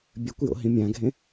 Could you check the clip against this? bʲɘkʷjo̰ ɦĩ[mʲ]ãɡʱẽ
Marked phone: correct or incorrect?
correct